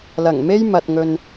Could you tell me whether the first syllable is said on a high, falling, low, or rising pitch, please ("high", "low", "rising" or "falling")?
low